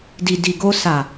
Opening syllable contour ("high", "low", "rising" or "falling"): low